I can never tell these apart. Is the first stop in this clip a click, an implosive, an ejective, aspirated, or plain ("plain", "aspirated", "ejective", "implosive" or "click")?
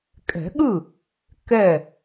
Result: ejective